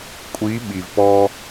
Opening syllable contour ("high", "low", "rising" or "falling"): rising